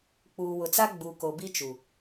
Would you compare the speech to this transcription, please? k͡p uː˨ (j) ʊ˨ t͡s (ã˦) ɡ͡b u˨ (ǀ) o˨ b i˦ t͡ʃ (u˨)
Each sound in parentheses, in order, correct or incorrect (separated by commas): incorrect, incorrect, incorrect, correct